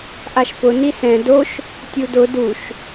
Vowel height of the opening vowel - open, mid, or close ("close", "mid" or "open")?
open